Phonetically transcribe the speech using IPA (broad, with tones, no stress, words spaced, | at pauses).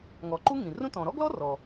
ŋɔ˩ ǃu˥ŋĩ˩rũ˥ tɔ̃˩ɾɔ˥ɡlɔ˥ rɔ˩